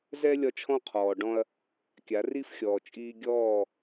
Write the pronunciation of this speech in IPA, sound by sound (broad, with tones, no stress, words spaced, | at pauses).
zɛ˦ lʲɒ˦t͡ʃʰɔ̃˦qʰɔː˨ɖɔ̃˦ɐ̯ | kʲa˨˦ri˦fxʲɔː˨ t͡ʃʼiː˦ ɡʲɔː˦˨